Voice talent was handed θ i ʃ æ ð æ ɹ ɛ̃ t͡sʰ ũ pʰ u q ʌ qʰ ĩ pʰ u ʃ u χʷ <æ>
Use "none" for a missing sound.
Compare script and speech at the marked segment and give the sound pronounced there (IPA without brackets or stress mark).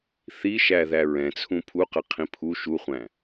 æ̃